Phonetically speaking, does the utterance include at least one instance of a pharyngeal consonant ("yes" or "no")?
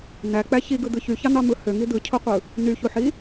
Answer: yes